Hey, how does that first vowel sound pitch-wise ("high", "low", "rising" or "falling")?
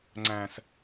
high